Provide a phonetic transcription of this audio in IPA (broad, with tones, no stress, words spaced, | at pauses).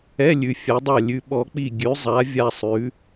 ɛ˧˥˧lʲʉ˩˧ fʲa˩˧dˤa˧˩ lʲʉ˩˧ ɓɔ˩˧k͡pi˧˩ ɡʲʉ˩˧zˤa˩˧ vʲa˧˩sˤʉ˩˧